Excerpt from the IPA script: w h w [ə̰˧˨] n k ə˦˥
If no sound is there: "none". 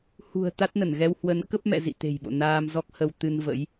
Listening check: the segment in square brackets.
ə˨˦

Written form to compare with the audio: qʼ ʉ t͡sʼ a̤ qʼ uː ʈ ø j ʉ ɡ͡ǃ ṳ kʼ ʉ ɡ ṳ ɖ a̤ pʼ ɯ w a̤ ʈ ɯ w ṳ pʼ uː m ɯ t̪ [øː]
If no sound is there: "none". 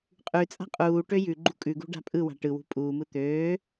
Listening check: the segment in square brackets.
øː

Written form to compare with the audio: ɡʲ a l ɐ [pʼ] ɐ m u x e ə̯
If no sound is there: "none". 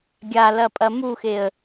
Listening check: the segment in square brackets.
pʼ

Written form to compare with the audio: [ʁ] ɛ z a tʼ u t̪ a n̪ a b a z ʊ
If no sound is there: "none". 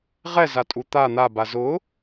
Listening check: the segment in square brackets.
ʁ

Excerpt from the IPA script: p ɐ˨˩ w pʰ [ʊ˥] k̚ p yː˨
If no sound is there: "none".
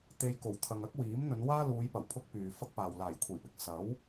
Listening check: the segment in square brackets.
ʊ˥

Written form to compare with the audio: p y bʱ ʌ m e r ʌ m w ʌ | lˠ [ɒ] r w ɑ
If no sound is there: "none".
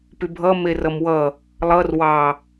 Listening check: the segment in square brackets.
ʌ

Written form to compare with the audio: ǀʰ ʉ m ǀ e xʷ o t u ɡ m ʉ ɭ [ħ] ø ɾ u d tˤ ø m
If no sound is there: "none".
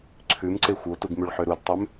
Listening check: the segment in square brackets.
ħ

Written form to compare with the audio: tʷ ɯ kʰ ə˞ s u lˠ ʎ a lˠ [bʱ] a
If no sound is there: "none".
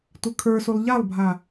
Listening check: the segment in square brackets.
bʱ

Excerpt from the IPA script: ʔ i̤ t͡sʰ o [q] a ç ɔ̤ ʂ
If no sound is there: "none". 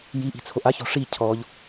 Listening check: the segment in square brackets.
ʔ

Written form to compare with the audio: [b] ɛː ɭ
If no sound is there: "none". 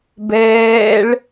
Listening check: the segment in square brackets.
b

